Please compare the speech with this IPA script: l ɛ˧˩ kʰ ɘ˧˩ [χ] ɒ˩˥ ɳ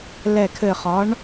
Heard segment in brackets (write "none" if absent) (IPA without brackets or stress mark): χ